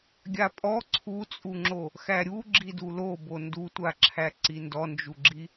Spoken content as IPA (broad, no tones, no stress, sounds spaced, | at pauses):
ɡʲ a pʼ ɔ ǀʰ u t͡sʼ u ŋ͡ǁ o | x æ ɾʲ u ɡ͡ǁ i d u l o b o n d u tʷ a ǁʰ æ ǀ i n d ɔ n d͡ʒ u ɡ͡ǁ i